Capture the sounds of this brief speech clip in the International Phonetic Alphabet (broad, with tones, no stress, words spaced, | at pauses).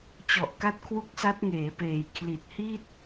t͡ɕɔ˨˩ʔka˦˥t̚kʰwu˦˥k̚ sa˦˥t̚ŋeː˩˦peː˨˩j kʰli˨˩t̚hi˥˩t̚